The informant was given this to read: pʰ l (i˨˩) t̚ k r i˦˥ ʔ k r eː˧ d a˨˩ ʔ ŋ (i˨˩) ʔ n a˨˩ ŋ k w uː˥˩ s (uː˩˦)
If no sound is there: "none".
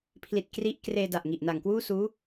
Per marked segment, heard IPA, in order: i˨˩, i˨˩, uː˦˥

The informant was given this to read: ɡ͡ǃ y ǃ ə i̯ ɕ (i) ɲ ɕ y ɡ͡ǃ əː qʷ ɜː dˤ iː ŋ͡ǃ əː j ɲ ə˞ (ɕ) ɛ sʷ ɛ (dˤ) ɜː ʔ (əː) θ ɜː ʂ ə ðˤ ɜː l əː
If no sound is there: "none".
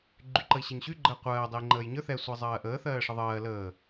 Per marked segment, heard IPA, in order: e, θ, zˤ, əː

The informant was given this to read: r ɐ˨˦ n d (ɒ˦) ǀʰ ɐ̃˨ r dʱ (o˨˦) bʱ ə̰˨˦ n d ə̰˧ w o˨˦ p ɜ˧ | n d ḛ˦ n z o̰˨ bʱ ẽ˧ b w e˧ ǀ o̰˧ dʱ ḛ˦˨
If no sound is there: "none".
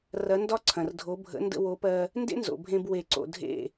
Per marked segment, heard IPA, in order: ɒ˦, o˨˦

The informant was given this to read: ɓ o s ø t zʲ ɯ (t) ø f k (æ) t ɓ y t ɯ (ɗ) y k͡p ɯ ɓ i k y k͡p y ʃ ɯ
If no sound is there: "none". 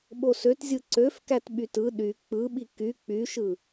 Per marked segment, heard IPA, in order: ǀ, æ, ɗ

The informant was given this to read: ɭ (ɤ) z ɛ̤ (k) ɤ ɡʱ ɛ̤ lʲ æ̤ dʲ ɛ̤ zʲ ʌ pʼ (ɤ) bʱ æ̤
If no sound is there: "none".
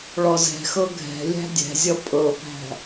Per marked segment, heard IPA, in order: ɔ, x, ɤ

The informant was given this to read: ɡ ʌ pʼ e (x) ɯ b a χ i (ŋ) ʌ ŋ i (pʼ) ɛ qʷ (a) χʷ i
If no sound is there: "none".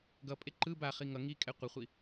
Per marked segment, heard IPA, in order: ǃ, ŋ, kʼ, ʌ

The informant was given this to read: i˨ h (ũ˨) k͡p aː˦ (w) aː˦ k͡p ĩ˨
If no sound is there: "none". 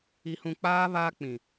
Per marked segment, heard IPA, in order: ũ˨, β

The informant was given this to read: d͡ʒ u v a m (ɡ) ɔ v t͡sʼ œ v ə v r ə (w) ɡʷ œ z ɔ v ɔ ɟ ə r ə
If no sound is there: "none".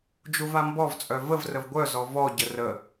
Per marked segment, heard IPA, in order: b, v

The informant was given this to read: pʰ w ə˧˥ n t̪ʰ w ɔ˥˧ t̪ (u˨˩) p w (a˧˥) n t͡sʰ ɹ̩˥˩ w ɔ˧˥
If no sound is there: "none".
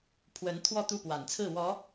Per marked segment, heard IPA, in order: u˥˩, a˨˩

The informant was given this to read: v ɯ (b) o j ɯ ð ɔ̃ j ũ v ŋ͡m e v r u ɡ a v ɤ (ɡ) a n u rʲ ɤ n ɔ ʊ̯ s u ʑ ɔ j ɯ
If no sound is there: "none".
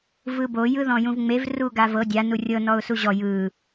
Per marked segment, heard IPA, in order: b, dʲ

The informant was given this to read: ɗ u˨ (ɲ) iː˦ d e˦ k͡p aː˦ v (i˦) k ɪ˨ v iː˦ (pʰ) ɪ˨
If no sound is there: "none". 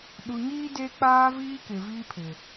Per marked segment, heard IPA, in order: ɲ, iː˦, pʰ

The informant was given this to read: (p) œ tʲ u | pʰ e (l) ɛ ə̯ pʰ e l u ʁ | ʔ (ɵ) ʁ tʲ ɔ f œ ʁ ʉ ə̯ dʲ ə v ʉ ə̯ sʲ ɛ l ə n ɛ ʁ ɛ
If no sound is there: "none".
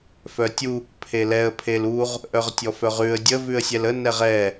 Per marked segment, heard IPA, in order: f, l, œ

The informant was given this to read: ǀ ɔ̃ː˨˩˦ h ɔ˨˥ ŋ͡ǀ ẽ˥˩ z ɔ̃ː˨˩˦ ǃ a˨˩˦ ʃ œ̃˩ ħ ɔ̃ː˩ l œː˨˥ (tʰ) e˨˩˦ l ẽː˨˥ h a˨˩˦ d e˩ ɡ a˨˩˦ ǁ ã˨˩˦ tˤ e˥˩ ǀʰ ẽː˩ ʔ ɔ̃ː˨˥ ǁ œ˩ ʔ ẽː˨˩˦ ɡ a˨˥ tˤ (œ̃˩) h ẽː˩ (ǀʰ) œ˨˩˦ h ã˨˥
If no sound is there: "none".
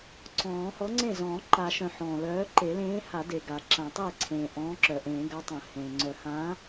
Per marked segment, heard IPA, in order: ǃ, œ̃˩, ŋ͡ǀ

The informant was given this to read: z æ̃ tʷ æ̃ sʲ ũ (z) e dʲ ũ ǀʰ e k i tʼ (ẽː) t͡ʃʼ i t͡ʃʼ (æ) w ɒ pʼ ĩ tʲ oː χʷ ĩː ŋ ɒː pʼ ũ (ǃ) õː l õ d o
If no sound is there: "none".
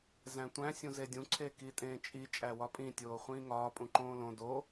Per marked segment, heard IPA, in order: z, ẽː, æ, ǃ

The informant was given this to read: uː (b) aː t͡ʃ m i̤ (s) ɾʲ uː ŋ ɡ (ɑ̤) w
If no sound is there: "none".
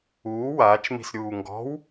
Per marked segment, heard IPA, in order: w, s, ɔ̤

